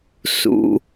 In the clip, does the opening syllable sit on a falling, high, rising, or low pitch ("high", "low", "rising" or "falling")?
low